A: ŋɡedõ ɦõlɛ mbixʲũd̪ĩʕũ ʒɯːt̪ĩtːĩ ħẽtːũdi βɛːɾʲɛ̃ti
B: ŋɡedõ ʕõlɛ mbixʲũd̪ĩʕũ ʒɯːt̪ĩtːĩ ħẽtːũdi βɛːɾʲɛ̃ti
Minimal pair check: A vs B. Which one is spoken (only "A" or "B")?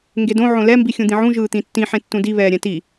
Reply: B